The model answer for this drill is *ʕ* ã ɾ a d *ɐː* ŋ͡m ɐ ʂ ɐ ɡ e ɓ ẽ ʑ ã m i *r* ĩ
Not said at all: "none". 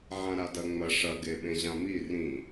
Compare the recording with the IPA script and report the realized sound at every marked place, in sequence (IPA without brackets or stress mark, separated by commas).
ʕ, ɐ, r